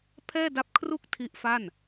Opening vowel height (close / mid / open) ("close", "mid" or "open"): mid